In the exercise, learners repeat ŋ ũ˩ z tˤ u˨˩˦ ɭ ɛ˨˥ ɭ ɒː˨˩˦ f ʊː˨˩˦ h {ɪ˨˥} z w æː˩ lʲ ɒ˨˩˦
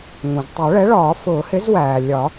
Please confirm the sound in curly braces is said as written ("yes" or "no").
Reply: yes